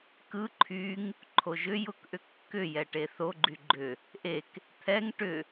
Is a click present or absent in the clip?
present